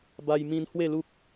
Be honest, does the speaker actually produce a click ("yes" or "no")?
no